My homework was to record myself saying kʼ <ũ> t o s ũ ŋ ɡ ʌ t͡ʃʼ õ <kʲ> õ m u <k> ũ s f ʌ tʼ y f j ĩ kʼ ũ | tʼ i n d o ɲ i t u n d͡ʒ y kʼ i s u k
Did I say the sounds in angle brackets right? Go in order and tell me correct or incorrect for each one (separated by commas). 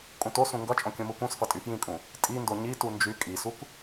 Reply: correct, correct, correct